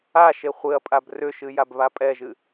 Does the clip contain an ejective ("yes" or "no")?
yes